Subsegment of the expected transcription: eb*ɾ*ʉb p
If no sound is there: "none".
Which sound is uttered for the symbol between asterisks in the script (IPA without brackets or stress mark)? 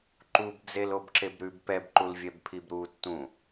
ɾ